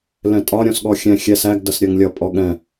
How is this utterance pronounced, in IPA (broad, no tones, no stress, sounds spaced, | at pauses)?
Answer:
l ɛ̃ tʼ ɒ ɾʲ ɔ̃ s ɠ ɔ xʲ ɛ̃ xʲ ɛ s æ ɡ d ʌ s ɾʲ ɜ ŋ lʲ ʌ pʼ ɔ ɠ ɛ̃